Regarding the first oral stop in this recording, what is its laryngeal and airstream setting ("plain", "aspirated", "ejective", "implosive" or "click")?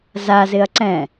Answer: click